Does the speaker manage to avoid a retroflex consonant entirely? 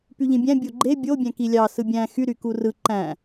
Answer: yes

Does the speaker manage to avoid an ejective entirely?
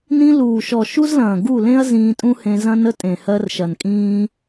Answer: no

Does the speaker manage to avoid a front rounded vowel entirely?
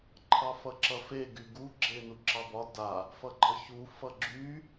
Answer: no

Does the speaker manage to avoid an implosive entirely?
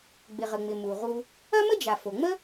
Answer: yes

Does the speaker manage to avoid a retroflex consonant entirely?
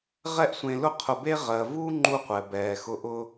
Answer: yes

